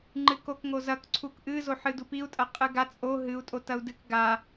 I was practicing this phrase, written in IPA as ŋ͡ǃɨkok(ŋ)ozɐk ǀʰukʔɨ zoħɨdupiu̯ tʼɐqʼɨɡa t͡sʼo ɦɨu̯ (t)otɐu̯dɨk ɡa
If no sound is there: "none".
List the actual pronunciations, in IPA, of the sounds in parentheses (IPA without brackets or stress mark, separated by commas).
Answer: ŋ, tʼ